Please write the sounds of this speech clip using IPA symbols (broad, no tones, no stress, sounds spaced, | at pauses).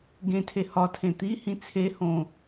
ɡ ẽ tʰ e h ɒ tʰ ẽ t̪ i h ĩ t͡sʰ e h õ